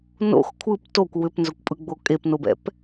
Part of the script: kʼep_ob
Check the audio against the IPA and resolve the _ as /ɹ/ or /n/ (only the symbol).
n